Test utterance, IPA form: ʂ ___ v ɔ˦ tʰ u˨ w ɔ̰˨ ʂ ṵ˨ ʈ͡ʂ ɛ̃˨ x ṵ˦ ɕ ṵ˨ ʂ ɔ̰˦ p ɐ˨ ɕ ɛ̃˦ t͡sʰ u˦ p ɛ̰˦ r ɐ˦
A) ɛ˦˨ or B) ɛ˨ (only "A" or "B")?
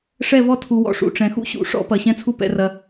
A